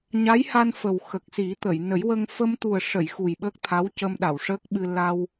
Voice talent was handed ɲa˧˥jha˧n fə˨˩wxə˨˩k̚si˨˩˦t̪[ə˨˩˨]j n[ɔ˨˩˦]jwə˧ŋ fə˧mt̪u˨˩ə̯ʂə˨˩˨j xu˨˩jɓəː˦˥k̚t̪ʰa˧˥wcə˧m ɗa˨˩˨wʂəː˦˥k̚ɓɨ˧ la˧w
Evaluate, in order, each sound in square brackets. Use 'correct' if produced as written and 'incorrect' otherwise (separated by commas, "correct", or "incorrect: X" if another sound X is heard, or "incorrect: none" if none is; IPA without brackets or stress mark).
correct, incorrect: ə˨˩˦